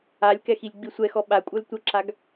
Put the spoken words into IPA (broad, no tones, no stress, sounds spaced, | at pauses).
a lʲ k ɛ x i lʲ ɡ͡b i sʷ ɛ x ɔ ɓ a kʷʼ œ l tʷ ə ǁ a ɡ